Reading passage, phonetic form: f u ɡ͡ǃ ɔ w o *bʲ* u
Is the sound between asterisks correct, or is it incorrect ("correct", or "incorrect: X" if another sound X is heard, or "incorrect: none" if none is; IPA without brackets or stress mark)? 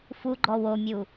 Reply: incorrect: mʲ